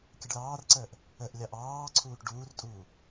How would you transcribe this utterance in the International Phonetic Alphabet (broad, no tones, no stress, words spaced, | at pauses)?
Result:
kʲəɖlɑːrǀəːʔ | əʔ lʲɑʔɑːǀʰuːʈ ɖuːrtʼuː